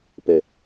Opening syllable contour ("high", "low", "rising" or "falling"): low